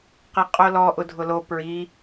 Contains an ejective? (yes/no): yes